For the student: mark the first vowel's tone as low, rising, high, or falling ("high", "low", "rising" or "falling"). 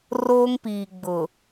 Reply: high